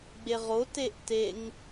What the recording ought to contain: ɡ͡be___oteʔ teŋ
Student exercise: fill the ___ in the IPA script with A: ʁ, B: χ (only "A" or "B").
A